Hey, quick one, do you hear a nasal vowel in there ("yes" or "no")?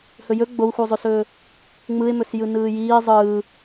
no